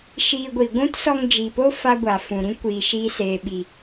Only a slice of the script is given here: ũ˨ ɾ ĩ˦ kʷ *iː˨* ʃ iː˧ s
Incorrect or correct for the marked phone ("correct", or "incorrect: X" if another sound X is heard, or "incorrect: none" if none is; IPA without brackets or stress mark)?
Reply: correct